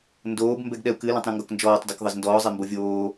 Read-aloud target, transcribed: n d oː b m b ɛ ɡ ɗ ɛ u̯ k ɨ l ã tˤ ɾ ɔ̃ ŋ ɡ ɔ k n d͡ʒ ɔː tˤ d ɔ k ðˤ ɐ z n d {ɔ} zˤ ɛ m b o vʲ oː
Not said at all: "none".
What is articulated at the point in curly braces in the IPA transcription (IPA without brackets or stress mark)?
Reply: ɔː